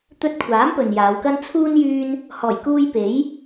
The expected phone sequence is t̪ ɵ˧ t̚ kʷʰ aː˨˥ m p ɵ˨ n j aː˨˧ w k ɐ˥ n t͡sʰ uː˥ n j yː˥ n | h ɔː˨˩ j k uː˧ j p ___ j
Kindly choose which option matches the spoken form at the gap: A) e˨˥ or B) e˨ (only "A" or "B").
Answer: A